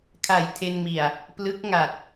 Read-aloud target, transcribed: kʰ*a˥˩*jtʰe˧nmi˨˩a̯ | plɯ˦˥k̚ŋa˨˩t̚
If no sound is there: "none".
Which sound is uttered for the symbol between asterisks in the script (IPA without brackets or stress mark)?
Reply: a˨˩